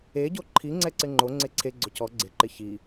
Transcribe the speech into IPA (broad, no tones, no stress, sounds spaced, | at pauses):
e ɟ o ǃʰ i ŋ͡ǀ ɛ ǀ ɪ ŋ͡ǃ o ŋ͡ǀ e ǀʰ e ɡ͡ǀ ʊ c ɔ ɡ͡ǀ ɪ ǃ ɪ ç i